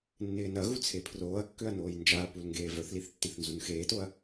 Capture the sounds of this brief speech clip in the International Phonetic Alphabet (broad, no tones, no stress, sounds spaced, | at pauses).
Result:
nː ɪː n ɐ ɣ u t͡sʰ e pʰ r oː ɐ̯ kː ø ɐ̯ n oː j n d͡ʒ a ɐ̯ p u l ŋ ɡ eː v œ θ l i θ tː i θ n z u n x eː t o ɐ̯